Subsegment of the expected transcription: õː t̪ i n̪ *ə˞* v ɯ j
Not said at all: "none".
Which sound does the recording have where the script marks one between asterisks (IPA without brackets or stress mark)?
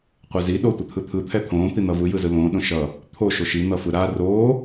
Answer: ʌ